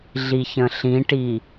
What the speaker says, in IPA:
ɮiçə̃ɬĩʈi

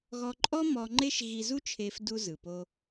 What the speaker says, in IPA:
ɣɔ˧ǃʼɔ˥ mɔ˧ŋ͡ǃe˥ʃ ɣi˧zu˥t͡ʃʰe˧f du˧zɯ˩po˧

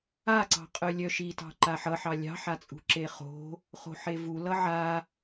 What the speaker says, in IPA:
aǀɑ̤qʼœ lʲœʃitɑ̤ ǃaħʌħɑ lʲɑ̤ħat͡sʼṳ ǁeχo̤ | χo̤ħevu lʌʕa

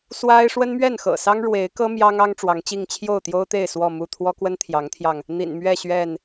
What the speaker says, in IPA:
swa˦ɪ̯ ʂwə˦nmɥɛ˥˨nxɤ̰˨˩sɑ˦ŋ ɻwe˨˦ɪ̯kɤ˦ mjɑ˦ŋɑ˦ŋ ʈ͡ʂwɑ˨˦ŋt͡ɕi˥˨ŋ t͡ɕʰjo˥˨ʊ̯t̪jo˦ʊ̯t̪e˥˨ɪ̯ swɔ˥˨mu˥˨ t̪ʰwɔ˦kwə˦nt̪ʰjɑ˨˦ŋt̪ʰjɑ˧ŋ | n̪ḭ˨˩nmɥɛ˥˨ɕɥɛ˥˨n

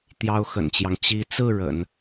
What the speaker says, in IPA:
t̪jɑ˥ʊ̯xə̰˨˩nt͡ɕjɑ˦ŋ t͡ɕi˧˥t͡sɹ̩˥˩ ɻə̰˨˩˦n

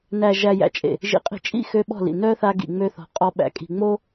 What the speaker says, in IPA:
næ˨ ʒæ˨jæ̰˨t͡ʃʼḛ˨ | ʒḭ˨qʼi̤˨t͡ʃʼḭ˦˨ xø˦ɓɔ̤˦˨lḭ˨ nœ˦ θa˦ɡḭ˨ŋ͡mø˦θɔ̤˨ qʼɔ˦ɓæ̰˨kʼi̤˨ŋ͡mo˦

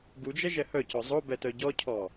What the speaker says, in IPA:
ɡud͡ʒɛʒɛ hœcɔ zˤobɛtœ ɟɔcʰɔ

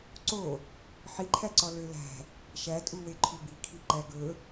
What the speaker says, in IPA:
ǀo | ħiǃʰæǀɔ lølæ̤ | ʃætʼuwe ǃʰubikʰi ǃæɡɵ

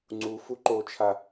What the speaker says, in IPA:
ŋ͡ǀufu ǃot͡ʃʰa

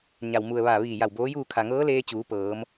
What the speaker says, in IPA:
ɲa˩wmu˩ə̯ʋa˧˩ ʋiː˧˩ja˧˩wboː˧˥juː˥˨ kʰa˩ŋɤː˧˥leː˧ t͡ɕuː˩˧pɤː˩˧m

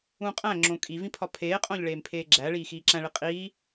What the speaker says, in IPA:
ũqʼæ̃ ŋ͡ǁõkʼivĩ pʰɒpʰeːqʼõʎɭeːm pʰeːɡ͡ǁæɭiː xiːǁæ̃ɭi qʼiː

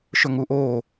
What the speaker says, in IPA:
ʃɵŋuʔoː

